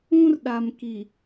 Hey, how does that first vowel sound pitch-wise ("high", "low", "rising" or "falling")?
high